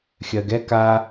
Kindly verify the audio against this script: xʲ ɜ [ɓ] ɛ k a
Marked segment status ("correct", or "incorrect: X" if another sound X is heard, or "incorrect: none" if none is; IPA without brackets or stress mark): incorrect: ɡ